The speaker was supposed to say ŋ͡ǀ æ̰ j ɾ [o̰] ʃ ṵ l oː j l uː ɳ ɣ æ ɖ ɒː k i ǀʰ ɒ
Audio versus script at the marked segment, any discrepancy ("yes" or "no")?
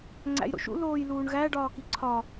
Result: no